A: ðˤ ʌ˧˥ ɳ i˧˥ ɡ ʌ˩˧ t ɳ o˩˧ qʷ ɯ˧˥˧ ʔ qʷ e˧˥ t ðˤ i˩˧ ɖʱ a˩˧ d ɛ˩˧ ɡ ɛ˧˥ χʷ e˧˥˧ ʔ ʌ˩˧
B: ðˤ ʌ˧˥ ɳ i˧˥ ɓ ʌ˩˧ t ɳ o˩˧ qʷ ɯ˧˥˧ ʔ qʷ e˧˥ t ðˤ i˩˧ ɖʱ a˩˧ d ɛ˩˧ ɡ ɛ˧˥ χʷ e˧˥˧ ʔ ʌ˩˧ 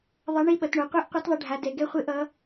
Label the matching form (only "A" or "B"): B